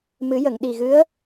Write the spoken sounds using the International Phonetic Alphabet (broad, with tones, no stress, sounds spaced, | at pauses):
m ɨ˨˩˦ j ə˨˩˨ ŋ ɗ i˨˩ ɣ ɨ˧˥ ə̯